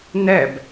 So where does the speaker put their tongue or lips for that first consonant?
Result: tongue tip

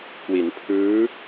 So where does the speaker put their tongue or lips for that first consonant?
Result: velum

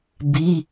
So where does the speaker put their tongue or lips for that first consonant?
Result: lips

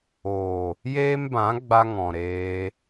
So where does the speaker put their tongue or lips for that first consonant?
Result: palate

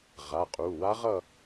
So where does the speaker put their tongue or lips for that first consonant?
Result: uvula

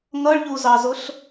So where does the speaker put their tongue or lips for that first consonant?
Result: velum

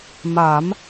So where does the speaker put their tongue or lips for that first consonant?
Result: lips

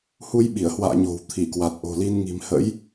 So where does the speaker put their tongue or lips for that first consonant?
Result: throat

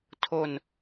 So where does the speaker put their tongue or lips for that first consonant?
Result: tongue tip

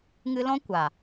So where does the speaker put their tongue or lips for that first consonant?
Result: velum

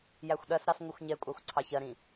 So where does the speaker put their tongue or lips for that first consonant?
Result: palate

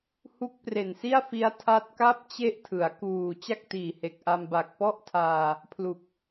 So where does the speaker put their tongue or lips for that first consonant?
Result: throat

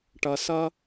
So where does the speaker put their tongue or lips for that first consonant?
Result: retroflex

